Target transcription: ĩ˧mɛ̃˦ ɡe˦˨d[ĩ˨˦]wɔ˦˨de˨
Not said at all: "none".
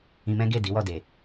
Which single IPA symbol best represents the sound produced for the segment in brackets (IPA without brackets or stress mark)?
i˨˦